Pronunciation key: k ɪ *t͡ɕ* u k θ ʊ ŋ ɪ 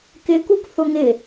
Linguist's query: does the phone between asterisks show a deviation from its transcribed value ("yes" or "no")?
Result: yes